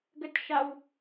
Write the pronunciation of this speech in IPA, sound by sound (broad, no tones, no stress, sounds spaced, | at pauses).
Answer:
ɡ ə t ʃ a w